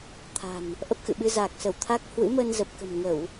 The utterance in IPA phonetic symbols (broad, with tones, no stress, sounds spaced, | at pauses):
t̪ʰ a̤˨˩ n | ʔ ə˦˥ p̚ x ɨ̰˧˨ ɓ ɨ˧ z a˨˩ k̚ s ə˧˩ w t̪ʰ a˦˥ k̚ h w ɨ̰˧˥ m ə˧ n z ə˨˩ p̚ k ə̤˨˩ m ŋ ə˧˩˨ w